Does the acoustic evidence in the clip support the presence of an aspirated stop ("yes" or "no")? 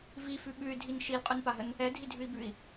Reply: no